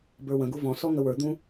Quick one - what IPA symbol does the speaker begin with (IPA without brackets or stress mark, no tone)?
b